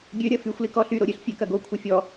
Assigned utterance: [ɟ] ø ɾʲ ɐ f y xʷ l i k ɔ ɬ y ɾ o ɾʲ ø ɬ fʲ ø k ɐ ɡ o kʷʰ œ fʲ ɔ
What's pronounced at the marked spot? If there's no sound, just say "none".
ɡʲ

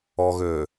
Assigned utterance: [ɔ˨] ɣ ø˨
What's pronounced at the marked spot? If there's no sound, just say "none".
ɔ˨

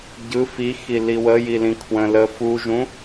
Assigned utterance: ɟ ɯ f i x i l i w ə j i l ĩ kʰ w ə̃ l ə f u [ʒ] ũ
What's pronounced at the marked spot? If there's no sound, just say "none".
ʒ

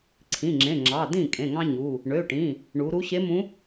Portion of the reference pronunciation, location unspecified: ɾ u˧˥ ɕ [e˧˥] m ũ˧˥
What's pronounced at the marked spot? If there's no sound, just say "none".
e˧˥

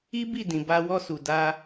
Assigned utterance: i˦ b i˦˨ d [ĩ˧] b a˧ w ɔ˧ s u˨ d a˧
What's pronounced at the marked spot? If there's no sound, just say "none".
ĩ˨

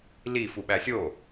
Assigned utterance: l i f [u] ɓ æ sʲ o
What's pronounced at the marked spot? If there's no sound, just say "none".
u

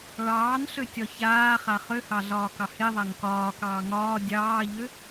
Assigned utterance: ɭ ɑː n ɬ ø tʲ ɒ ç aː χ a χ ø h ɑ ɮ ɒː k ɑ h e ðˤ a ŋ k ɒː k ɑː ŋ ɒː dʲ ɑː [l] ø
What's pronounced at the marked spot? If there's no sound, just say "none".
ʎ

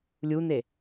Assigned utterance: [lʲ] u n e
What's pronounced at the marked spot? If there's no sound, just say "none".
lʲ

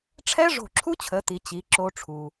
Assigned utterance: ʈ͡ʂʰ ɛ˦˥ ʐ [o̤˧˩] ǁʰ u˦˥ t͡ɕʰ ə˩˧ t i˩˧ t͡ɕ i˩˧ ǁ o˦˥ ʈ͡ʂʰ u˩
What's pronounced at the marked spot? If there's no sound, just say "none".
o̤˧˩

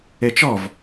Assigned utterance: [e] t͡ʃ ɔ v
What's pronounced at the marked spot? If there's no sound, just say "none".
e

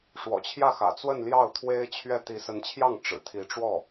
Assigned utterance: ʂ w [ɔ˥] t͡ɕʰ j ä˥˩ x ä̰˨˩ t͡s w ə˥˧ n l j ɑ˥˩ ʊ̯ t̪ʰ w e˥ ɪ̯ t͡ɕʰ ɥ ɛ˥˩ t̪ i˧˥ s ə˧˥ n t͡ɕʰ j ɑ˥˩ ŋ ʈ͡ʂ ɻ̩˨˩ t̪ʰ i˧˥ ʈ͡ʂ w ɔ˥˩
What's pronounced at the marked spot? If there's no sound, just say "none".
ɔ̰˨˩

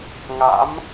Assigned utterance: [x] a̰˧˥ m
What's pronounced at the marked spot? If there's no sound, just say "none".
ŋ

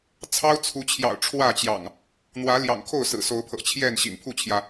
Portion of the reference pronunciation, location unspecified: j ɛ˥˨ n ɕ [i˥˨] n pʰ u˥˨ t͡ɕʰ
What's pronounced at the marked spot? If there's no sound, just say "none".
ḭ˨˩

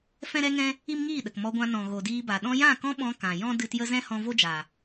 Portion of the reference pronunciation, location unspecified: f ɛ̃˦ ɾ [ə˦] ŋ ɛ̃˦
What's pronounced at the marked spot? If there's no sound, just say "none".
ɛ˦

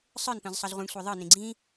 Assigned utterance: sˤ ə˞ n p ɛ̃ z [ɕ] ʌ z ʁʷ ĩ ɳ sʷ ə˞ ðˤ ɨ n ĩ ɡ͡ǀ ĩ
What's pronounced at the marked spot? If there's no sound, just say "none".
sˤ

